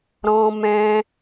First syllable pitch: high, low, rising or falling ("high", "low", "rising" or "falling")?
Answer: high